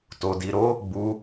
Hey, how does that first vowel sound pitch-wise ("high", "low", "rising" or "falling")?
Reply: low